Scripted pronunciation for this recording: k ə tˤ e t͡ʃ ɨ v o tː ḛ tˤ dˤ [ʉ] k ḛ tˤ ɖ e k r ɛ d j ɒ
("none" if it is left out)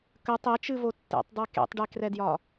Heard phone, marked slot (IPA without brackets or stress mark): ʉ